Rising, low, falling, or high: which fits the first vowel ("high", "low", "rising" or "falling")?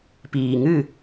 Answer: low